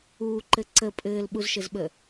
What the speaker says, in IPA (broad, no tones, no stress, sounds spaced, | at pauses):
uː ǃ ɘ ǀ ə pʼ ɘː l ɓ u z ʃ ɘ z ɓ ə